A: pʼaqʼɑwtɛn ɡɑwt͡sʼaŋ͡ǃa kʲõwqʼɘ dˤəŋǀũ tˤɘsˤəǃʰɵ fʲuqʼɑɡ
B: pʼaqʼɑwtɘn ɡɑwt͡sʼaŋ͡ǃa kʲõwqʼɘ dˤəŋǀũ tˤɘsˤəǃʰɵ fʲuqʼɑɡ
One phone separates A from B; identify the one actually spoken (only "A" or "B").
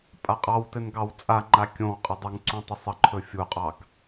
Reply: B